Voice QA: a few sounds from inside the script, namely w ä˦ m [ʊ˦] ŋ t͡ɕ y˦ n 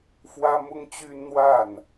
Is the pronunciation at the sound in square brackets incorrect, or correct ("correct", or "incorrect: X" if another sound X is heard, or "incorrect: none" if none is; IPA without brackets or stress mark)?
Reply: correct